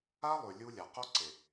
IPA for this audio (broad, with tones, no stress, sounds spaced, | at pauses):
a˦ lˠ ʉ˨ lʲ u˧ lʲ a˨ q o˦ ǀ e˨